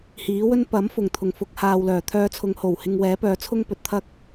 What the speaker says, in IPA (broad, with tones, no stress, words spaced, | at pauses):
hiː˨˥wɵ˥n pɐ˨˥mfʊ˨˩ŋt̪ʰʊ˨˩ŋ fʊ˧k̚haː˨wlœː˨˩ t̪ʰœː˧t͡sʰʊ˨˧ŋho˨˩w hɪ˧ŋwɛː˨˥pœː˨˥ t͡sʰʊ˥ŋpɵ˨t̚t̪ʰɐ˥k̚